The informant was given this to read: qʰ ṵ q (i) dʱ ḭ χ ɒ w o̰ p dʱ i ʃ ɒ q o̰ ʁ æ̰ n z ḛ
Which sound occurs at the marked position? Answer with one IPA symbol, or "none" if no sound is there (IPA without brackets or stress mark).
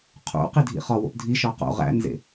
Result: i